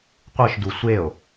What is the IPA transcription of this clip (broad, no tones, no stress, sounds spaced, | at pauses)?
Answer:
qʷ ɯ ʃ d u sʷ e o̯